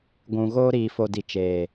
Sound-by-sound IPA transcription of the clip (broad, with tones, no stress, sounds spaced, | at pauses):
ɡʷ ũ˨ ɣ oː˧ ɾ iː˨ f o˨ d i˨ t͡ʃ eː˨